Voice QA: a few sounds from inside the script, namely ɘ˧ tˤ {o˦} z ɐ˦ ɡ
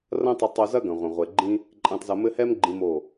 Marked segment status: incorrect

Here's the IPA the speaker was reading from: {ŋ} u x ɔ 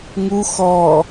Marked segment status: correct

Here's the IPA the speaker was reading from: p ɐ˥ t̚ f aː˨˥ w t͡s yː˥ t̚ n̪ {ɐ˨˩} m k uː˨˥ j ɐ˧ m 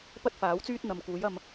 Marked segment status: incorrect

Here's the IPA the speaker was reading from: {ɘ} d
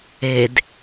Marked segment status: incorrect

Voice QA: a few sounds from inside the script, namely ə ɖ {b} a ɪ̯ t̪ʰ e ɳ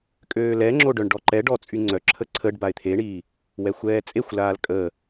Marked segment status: correct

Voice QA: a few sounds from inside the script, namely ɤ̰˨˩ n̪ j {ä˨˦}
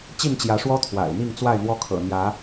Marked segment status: correct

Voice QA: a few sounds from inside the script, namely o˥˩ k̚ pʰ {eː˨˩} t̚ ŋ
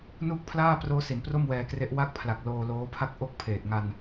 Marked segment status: correct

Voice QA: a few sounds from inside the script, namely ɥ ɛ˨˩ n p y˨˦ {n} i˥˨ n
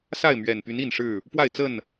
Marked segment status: correct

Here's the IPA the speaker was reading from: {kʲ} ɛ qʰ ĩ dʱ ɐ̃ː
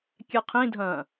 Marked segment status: correct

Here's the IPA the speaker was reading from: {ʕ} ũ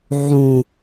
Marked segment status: correct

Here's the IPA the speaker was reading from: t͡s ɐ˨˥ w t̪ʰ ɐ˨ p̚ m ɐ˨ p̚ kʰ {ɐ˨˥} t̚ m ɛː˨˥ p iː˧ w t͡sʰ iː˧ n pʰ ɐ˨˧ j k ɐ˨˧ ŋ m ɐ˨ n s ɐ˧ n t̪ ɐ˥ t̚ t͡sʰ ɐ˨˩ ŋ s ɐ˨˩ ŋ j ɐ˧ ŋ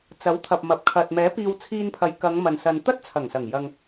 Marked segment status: incorrect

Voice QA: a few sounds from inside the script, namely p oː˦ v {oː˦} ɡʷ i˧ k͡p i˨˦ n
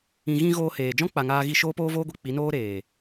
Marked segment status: correct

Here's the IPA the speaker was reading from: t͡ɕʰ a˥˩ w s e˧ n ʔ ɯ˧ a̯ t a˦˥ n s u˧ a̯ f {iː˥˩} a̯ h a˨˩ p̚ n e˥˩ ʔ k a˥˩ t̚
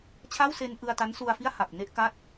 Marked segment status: incorrect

